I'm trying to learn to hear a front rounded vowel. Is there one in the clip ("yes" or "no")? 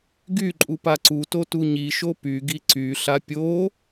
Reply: yes